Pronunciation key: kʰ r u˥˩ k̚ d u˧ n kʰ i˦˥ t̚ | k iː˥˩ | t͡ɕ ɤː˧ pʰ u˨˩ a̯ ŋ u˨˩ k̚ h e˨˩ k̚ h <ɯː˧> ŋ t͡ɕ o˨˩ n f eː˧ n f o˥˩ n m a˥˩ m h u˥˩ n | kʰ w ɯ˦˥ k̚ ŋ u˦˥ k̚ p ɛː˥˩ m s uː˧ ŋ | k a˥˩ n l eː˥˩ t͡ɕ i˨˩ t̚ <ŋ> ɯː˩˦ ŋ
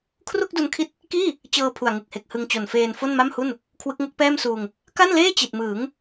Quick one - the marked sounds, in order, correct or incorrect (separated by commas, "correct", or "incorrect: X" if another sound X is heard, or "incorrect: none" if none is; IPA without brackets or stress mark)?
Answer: incorrect: ɯ˧, incorrect: m